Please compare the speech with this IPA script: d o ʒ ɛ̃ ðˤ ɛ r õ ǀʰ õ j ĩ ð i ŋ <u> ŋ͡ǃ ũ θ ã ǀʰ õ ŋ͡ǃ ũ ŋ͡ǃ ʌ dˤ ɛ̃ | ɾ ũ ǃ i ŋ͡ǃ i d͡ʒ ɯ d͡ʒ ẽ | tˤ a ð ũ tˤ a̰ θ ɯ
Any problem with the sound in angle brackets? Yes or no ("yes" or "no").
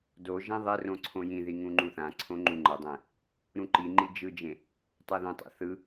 yes